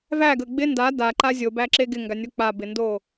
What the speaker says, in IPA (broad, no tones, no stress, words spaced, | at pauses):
væɡə ɡ͡bɪ nda daǃa zʲobæǁe ɡɪŋɡanʲo k͡pabɪndo